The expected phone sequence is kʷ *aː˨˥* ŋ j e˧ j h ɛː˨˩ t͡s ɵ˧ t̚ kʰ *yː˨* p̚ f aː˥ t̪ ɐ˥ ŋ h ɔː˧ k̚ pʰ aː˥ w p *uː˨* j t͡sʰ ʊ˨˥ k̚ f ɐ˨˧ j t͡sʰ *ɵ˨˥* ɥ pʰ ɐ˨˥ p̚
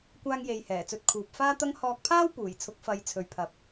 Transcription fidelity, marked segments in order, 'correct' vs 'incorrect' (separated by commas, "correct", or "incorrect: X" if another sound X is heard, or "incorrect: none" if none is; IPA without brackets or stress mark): incorrect: aː˥, incorrect: uː˨, incorrect: uː˨˩, incorrect: ɵ˨